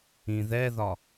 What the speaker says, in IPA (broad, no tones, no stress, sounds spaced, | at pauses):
ĩ ð ɛ ð ɒ